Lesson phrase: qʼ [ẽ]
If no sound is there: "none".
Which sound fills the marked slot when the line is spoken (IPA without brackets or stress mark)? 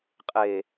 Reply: e